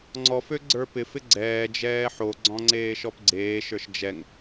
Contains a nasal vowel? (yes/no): yes